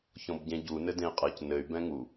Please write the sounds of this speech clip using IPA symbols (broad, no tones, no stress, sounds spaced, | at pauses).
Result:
ç ɔ̃ b ɟ ẽ ɟ u n ɘ d ẽ i̯ qʼ ɘ c n ɘ y̯ b ɛ̃ ŋ u